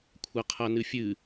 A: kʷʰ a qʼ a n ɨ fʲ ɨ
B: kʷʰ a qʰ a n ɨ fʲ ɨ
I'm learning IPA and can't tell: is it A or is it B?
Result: B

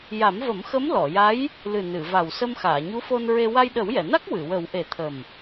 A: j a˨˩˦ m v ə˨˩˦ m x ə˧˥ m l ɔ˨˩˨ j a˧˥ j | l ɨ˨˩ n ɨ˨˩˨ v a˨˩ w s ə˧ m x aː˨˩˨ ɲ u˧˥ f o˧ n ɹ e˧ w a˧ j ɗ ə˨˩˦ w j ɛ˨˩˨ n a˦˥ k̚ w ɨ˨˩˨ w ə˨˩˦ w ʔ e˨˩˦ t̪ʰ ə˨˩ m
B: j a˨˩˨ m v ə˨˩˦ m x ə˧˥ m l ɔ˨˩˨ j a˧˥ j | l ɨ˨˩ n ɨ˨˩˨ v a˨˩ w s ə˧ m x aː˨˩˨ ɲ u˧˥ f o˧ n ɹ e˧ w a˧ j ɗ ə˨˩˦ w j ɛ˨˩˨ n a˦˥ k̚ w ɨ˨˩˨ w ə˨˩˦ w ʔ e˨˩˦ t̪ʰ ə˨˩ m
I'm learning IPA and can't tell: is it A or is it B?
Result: A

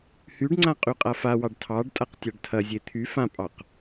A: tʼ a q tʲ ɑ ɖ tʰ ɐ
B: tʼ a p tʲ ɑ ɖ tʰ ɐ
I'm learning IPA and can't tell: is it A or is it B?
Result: A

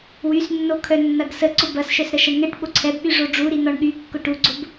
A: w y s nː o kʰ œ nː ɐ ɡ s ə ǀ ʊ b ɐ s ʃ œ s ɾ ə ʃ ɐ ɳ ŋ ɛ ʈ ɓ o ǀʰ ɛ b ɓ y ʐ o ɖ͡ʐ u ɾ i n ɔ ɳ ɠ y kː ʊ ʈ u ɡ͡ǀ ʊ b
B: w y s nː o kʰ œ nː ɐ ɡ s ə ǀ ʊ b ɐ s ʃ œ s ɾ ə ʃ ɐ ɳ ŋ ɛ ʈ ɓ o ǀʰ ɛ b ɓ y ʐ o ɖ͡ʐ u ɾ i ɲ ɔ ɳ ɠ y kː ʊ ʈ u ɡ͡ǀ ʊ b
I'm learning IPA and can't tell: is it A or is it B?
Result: A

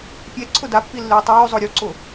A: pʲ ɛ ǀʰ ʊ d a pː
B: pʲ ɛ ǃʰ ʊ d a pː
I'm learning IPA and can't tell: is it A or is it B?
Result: A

